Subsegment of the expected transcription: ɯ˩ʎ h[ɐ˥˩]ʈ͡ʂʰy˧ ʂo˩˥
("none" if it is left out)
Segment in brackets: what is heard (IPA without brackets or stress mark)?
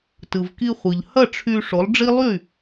ɐ˥˩